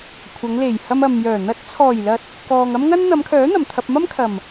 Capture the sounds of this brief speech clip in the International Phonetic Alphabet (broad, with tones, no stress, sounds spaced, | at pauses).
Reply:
kʷʰ ɐ˨˧ ŋ l e˨˩ j h ɐ˧ m ɐ˨ m j œː˨˩ n̪ ɐ˨˥ t̚ t͡sʰ ɔː˨˩ j l ɐ˨ t̚ | k ɔː˨ ŋ ɐ˥ m ŋ ɐ˥ n n̪ ɐ˨˧ m kʰ œː˨˥ n̪ ɐ˨˩ m t̪ʰ ɐ˨ p̚ m ɐ˥ m kʰ ɐ˨˩ m